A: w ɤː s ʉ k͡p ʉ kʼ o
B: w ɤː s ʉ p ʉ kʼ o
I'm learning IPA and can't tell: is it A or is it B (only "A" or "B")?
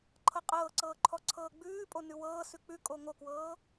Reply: A